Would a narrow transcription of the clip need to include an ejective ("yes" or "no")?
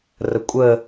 yes